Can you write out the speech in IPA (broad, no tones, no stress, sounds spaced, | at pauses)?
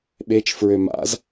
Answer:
ɓ e t͡ʃ f ɹ ø m a̰ z